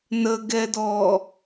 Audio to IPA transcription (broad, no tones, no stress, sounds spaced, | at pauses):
n ə ɡ ɛ d ɔ